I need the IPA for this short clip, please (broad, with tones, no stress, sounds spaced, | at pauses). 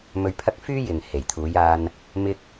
m ɵ˧ ɥ pʰ ɐ˥ k̚ f yː˥ j ɪ˨ ŋ h e˨˩ j t̪ʰ uː˨˧ j aː˧ n | m ɪ˥ k̚